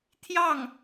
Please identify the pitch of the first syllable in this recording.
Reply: falling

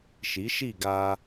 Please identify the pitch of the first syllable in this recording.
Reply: rising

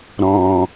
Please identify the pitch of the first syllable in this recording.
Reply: low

